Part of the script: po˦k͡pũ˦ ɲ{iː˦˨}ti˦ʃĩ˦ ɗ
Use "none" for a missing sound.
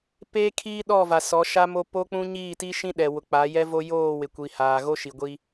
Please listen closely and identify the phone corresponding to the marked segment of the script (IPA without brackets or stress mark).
iː˦˨